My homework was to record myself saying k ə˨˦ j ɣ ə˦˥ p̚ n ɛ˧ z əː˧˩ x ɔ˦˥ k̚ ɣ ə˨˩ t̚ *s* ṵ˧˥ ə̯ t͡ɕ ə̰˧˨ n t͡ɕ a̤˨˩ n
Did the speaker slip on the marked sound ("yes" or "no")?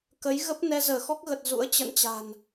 yes